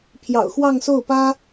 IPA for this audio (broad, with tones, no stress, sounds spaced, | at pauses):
pʰ j ɑ̰˨˩ ʊ̯ x w ɑ˥˧ ŋ s o˥˩ ʊ̯ p ä˥